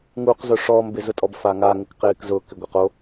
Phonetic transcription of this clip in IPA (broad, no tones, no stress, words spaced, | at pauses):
ŋuqzʊ ʂɔːmbɪzʊtʼɔb faŋaŋɪk qɪːkzʊkɪ ɡʷɛqo